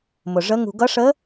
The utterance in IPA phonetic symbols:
m ʊ˨ ʐ ə˧˥ ŋ ṳ˨ ɡ ʌ˧˥ ʂ ə˧˥

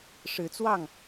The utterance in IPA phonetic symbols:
ʂ ɻ̩˨˦ t͡s w ɑ˥˨ ŋ

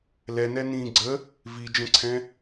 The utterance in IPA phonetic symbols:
l ɛ n ɛ n ĩː ɡ͡ǀ ə | v i d͡ʒ ə̃ ǀʰ ɛ̃

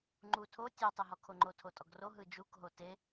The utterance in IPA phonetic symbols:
ŋ͡ǃ u tʰ o tʲ ɔ tˤ ɯ ɦ ɔ kʰ o ŋ͡ǃ o tʰ o tʼ ɔ ɡ r o ɦ ɯ d͡ʒ u k ɦ o t e

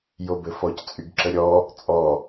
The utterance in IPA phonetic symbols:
j o b ɘ f ɔ c t͡sʼ y ɡ ǁ ə ɾʲ ɔ | t͡sʼ ɔ

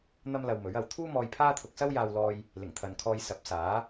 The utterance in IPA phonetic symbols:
n̪ ɐ˥ m l ɐ˧ w m ɵ˨˥ ɥ ɐ˨ w t̪ʰ uː˥ m ɔː˧ j pʰ aː˥ t̪ʰ ʊ˧ k̚ s ɐ˥ w j aː˧ w l ɔː˧ j | l ɪ˨˩ ŋ t̪ʰ ɐ˨ n kʰ ɔː˧ j s ɐ˨˥ p̚ s aː˨˥

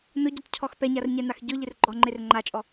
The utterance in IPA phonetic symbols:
n ʊ ɟ ɔ t cʰ ɔ x p ɛ ɲ a r ɲ ɛ n a x ɟ ʊ ʎ ɪ r ɡ͡ǃ ɔ ŋ͡ǃ e r ŋ͡ǃ a t͡ʃʼ ɔ

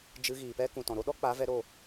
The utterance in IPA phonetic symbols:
d͡ʒ ɨ˧ ɣ iː˨ p ɛ˦ k ũ˨ t ɔ̃˨ ɾ o˦ ɗ ɔ˦ k͡p a˨˦ v ɛ˧ ɾ o˦˨

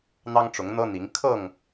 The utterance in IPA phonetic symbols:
n̪ ɑ˦ ŋ ʈ͡ʂ ʊ˨˦ ŋ n̪ ɤ˦ n̪ i˨˦ ŋ kʰ ɤ˥˨ ŋ

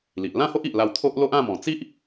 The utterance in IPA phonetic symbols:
l i˨ ʔ l ã˥˧ h o˦ ʔ i˨ ʔ l a˧ w t̪ʰ o˦ ʔ l o˦ ʔ ã˥˧ m ɔ̃˨˩ t͡s i˦ ʔ

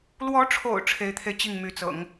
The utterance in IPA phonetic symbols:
l w ɔ˧˥ ʈ͡ʂʰ o̰˨˩ ʊ̯ ʈ͡ʂʰ e˧˥ ɪ̯ t̪ʰ e˧ ɪ̯ t͡ɕ i˥˩ ŋ m y˧˥ t͡s ɤ̰˨˩˦ ŋ

